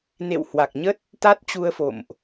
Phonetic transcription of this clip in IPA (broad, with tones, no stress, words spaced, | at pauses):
nḛ˧˨whwa˨˩k̚ɲə˦˥t̚ | t̪a˦˥t̚t͡ɕu˧ə̯fo̰˧˨mʔ